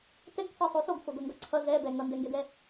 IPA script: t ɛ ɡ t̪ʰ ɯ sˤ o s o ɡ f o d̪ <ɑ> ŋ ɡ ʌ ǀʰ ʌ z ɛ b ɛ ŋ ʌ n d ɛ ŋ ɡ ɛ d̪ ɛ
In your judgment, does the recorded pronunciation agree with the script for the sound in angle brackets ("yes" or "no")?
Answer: no